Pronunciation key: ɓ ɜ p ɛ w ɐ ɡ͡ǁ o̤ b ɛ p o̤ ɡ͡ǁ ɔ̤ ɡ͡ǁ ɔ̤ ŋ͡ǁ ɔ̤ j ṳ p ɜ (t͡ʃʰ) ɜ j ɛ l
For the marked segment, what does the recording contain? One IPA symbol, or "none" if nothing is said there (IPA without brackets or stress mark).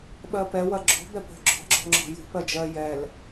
d͡ʒ